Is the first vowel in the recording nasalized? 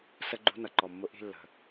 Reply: no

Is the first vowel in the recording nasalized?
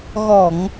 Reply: no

